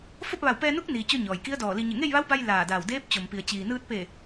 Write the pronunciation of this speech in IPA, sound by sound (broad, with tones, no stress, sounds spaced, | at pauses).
f o˥˨ p̚ ʋ a˧˩ w p ɛː˧ n u˧˥ k̚ n iː˩ t͡ɕ o˧ ɲ ɔː˩ j k i˧˥ ə̯ d ɔː˧˩ l i˧ ɲ e˧˩ ŋ e˥˨ j ʋ a˧˥ w b a˧ j l aː˧˩ d aː˧˩ w d eː˧˥ p̚ t͡ɕ o˩ m p i˩ ə̯ t͡ɕ iː˩ n ɯː˧ t̚ p e˧˩